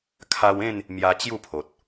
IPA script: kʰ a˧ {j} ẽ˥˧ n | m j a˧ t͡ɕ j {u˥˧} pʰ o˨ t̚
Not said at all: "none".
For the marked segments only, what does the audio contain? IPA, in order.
w, u˥˧

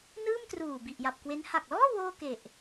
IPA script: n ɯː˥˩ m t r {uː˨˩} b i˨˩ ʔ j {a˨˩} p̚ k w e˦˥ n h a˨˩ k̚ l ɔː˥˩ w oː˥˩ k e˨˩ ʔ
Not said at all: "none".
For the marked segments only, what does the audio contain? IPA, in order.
uː˨˩, a˨˩

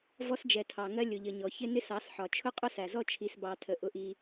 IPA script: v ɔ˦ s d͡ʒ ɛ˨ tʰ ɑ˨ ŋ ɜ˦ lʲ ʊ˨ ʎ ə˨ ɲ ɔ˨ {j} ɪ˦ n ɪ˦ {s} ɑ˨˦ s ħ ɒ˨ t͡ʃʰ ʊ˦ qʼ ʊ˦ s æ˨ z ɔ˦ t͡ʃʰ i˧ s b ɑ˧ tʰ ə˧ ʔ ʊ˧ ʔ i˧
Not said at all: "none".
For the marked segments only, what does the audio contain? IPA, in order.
ç, s

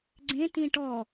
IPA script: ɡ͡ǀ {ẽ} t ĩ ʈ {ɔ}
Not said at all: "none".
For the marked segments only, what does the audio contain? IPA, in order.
ẽ, ɔ

